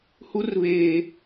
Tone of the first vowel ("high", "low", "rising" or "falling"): high